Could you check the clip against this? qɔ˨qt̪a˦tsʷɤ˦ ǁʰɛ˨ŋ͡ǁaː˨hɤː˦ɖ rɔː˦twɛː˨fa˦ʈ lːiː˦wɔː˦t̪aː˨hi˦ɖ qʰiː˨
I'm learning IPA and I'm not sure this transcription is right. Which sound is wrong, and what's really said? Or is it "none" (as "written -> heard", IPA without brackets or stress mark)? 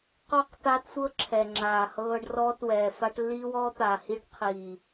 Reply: ɔ˨ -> ɔ˦˨